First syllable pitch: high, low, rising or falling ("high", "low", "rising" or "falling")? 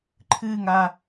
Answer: falling